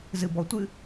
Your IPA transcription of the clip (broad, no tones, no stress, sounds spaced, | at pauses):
z ɨ b ɔ tʷ ɨ